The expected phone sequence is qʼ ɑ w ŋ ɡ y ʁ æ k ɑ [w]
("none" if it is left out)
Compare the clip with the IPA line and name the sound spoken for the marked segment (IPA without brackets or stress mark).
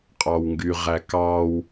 w